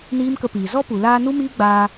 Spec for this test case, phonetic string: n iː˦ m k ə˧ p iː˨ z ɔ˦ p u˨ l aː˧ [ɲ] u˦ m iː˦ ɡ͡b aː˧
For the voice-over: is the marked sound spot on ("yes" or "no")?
no